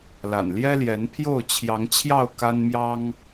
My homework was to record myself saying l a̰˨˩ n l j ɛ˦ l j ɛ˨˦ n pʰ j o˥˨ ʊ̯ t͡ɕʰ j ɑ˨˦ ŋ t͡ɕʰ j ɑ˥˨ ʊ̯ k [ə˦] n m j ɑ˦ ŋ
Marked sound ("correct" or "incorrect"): incorrect